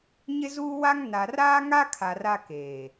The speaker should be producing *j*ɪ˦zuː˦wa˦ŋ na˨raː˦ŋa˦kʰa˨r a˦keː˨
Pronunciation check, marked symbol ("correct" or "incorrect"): incorrect